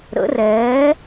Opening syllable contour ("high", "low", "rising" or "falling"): rising